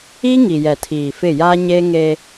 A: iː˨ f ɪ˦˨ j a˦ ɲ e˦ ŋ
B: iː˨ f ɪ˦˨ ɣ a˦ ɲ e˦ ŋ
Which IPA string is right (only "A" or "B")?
A